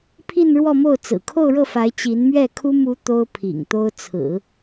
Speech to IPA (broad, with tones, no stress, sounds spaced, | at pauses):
pʰ i˥˧ n ɻ w ɔ˥˧ m o˥˩ ʊ̯ t͡s ɹ̩˨˩ kʰ o˥˧ ʊ̯ ɻ ɤ˥˩ f a˧˥ ɪ̯ t͡ɕ i˧˥ n m ɥ ɛ˥˩ kʰ u˥ m u˧˥ t̪ o˥ ʊ̯ pʰ ḭ˨˩ ŋ t̪ o˥ ʊ̯ t͡sʰ ɹ̩˨˩˦